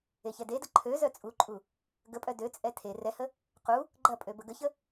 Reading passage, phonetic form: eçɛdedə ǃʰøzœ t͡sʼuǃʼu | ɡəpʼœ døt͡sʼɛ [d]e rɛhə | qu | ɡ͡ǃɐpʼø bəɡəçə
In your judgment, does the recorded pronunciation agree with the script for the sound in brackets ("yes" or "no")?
no